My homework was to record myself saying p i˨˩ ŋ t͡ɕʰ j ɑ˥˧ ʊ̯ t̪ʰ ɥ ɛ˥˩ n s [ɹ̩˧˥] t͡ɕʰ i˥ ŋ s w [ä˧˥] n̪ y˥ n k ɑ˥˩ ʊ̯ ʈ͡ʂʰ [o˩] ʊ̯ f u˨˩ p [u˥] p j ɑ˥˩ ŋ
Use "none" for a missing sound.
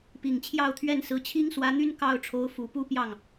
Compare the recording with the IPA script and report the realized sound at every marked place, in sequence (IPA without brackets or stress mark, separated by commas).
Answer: ɹ̩˧˥, ä˧˥, o˧˥, u˥